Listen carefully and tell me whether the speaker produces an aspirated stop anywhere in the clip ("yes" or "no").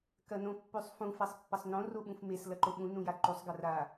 no